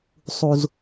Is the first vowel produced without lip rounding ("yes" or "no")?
no